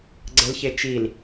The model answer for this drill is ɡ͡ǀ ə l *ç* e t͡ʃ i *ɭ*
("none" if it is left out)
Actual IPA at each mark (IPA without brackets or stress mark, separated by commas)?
ç, l